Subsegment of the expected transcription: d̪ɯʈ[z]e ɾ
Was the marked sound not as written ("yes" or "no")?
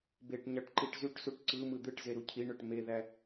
no